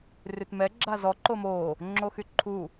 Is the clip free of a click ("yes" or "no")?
no